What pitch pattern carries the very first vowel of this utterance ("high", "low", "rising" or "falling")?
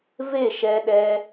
falling